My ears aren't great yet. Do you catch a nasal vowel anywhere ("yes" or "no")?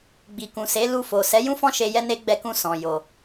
yes